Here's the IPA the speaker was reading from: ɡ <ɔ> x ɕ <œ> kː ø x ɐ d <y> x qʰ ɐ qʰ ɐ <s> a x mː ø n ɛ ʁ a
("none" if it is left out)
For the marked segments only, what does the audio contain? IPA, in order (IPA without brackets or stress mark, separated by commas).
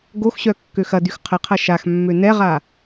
o, œ, y, ʃ